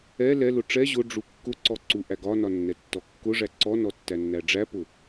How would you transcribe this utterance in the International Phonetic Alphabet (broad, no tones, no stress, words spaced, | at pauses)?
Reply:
ɛ lɛlʊ ʈ͡ʂɛ ʑʊ ɖ͡ʐukːʊǀɔ ǀuʔæɡɒnɒ nːɛtːɔkːʊʐæ ǀɔnɔ tːænːæɖ͡ʐæpʊ